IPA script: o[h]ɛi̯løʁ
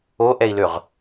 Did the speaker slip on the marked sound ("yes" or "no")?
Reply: yes